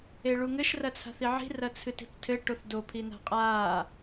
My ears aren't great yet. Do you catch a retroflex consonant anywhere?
yes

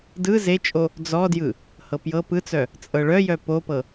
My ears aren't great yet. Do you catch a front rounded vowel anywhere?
yes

